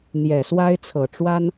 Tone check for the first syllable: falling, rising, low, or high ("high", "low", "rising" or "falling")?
low